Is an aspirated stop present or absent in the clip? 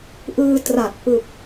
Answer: absent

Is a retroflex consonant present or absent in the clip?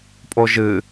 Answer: absent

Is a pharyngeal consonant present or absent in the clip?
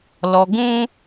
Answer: absent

